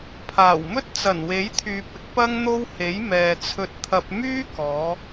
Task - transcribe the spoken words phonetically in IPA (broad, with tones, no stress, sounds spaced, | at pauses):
pʰ aː˨˩ w m ɵ˥ t̚ t͡s ɐ˨˩ n w e˨˥ j t̪ʰ yː˨ p̚ ɪ˨˥ k̚ p ɐ˥ ŋ n̪ o˥ w h e˨˥ j m ɛː˨ t͡sʰ ɵ˧ t̚ t̪ʰ ɐ˧ p̚ m yː˥ k ɔː˨˧